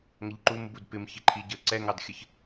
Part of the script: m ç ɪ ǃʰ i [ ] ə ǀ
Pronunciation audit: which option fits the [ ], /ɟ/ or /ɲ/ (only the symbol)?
ɟ